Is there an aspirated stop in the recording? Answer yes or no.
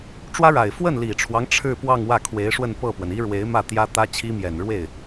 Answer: yes